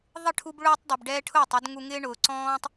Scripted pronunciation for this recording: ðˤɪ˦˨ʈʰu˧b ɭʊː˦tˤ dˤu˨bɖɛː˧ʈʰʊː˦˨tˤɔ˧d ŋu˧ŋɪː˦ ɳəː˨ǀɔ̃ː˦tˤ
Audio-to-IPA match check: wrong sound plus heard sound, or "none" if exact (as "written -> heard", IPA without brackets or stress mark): əː˨ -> ʊː˨